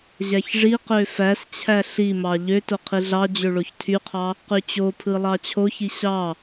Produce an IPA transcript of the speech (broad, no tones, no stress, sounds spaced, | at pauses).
ʑ æ ç ʐ i q ø f æ s t͡ɕʰ æ ɬ i m ɑ ʎ ø t o qʰ i ɮ ɑ d͡ʑ ø ɭ o ç tʰ y qʰ ɑ | q y t͡ɕ o pʰ ɯ lˠ ɑ t͡ɕʰ o ç i ɕ ɑ